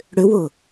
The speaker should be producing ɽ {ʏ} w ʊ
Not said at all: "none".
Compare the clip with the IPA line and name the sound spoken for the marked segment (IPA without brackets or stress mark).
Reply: ʏ